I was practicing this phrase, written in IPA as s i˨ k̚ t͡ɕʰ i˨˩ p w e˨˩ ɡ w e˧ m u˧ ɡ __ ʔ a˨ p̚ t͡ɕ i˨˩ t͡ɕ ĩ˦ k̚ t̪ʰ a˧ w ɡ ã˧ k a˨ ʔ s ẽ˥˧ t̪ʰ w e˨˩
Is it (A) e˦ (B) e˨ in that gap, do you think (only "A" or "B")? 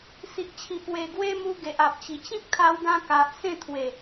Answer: B